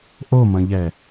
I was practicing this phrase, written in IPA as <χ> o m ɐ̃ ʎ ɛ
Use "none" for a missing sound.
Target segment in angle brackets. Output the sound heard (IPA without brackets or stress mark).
ʔ